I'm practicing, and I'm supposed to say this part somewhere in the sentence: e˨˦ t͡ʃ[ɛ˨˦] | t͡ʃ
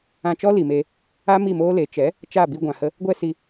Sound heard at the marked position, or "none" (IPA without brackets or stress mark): ɛ˨˦